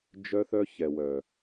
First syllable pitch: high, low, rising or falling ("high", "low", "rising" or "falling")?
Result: high